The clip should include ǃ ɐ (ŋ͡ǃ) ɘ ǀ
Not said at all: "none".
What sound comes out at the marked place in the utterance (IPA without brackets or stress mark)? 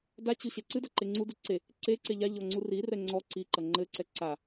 ŋ͡ǃ